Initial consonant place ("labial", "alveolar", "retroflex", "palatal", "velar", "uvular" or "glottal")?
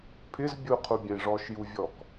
labial